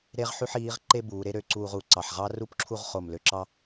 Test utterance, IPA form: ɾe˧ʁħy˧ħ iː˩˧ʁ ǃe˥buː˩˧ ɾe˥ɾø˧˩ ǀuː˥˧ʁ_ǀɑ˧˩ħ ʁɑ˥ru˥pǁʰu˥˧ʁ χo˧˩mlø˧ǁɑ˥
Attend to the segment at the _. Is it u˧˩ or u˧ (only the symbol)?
u˧˩